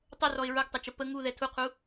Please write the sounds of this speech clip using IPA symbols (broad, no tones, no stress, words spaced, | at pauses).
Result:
tˤʊrɔɪ̯ ɹʊɡtˤʌt͡ʃə pə ŋuðɛ tʰuqʰu